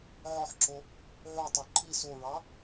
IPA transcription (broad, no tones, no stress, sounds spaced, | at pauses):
ʕ ɔ ħ ǁ o | ʕ u tˤ ø ǃʰ i s o ɹ ɑ